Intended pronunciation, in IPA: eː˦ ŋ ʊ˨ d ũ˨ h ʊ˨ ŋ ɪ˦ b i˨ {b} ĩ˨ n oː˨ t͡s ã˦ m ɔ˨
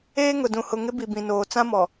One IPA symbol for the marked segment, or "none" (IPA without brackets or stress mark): b